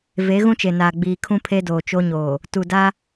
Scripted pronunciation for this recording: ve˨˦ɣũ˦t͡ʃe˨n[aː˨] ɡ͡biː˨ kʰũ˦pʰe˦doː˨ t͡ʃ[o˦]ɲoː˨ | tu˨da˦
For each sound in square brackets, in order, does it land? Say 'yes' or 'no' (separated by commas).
yes, yes